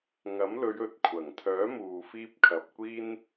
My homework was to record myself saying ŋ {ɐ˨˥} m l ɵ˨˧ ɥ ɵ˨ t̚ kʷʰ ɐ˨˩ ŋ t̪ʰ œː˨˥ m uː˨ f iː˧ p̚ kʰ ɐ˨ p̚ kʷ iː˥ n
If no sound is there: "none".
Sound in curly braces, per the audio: ɐ˨˥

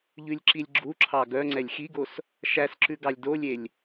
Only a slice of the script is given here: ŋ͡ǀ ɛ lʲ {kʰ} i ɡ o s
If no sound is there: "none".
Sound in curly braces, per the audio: x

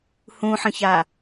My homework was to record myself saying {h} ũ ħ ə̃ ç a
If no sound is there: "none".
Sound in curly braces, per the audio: h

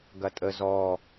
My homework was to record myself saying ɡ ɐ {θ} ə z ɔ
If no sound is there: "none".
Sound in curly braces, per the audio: tʼ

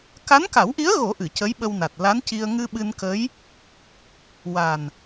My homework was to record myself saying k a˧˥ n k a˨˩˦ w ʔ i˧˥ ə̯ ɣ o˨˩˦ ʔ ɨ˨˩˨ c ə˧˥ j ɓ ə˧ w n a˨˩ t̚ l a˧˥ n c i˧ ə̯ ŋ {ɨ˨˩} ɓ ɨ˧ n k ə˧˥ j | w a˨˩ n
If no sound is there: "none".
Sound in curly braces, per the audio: ɨ˧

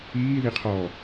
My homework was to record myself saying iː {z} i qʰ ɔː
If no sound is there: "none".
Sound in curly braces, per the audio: ð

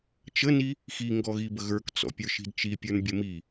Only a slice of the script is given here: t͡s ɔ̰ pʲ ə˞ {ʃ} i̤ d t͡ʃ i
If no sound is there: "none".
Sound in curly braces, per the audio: ʃ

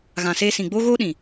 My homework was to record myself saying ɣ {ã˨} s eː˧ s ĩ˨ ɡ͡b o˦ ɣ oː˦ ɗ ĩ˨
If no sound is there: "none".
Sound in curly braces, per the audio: ã˨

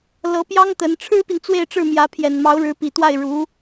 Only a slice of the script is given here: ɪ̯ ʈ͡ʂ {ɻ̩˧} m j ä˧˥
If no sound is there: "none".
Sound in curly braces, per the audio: ɻ̩˥˩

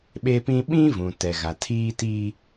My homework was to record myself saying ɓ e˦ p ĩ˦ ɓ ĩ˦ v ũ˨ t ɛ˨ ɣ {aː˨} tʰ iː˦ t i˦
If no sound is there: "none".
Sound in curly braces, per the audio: a˨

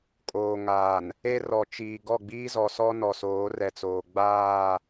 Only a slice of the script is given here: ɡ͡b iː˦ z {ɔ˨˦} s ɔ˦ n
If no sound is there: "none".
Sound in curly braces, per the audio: ɔ˨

